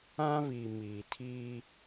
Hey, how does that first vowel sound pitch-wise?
high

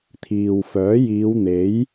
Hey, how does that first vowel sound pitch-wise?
low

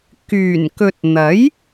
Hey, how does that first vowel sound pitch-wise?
low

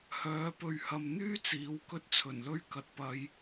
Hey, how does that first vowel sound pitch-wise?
rising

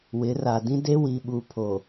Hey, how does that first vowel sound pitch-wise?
rising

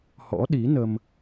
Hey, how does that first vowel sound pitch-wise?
rising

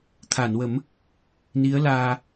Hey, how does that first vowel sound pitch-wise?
low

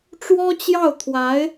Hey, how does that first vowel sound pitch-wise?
high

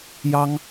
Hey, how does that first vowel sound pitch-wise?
high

